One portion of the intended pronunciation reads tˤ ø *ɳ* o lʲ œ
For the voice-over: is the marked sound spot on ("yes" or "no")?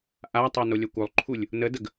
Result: no